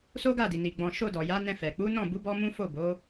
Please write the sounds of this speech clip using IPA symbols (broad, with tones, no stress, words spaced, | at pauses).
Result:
so˦ɡa˦˨di˨ ni˨ ɡ͡bɔ̃˨ʃo˧ dɔ˨ja˨˦nɛ̃˧fɛ˨ k͡pu˨˦nɔ̃˦˨bu˨˦ bɔ˦mũ˦ fo˦˨bo˨˦